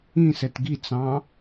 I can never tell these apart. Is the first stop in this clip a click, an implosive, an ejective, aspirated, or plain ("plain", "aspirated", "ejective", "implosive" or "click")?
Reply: plain